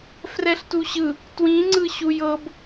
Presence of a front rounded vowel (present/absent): absent